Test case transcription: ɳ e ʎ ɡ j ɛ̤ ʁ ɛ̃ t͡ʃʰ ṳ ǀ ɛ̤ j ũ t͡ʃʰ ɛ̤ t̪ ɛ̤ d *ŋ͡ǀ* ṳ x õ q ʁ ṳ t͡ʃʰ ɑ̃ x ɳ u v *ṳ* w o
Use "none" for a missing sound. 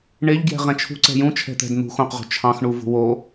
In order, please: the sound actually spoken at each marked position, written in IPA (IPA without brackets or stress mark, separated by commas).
n̪, ṳ